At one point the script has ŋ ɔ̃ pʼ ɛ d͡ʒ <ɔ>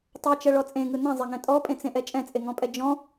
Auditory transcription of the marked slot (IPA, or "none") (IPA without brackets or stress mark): ɔ̃